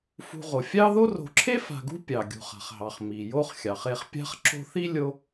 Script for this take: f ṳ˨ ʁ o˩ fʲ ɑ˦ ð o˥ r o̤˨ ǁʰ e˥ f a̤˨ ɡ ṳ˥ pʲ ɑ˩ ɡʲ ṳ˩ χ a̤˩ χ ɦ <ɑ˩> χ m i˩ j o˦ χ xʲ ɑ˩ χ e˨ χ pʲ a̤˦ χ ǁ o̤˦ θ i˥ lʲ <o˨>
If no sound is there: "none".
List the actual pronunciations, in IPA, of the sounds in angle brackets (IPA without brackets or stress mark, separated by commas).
ɑ˩, o˦